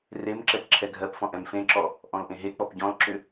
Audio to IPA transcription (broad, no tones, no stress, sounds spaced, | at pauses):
r e m ǁ ɛ p ǁʰ ɛ ɡʱ ɜ p f ɔ̃ ʔ ɛ̃ m f ẽ ǁ ɔ | ʔ ɔ̃ l ʔ ẽ ɦ e k͡p ɔ p ɟ ɔ̃ l ǁ ʏ